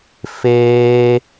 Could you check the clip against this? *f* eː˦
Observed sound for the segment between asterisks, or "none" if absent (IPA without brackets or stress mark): f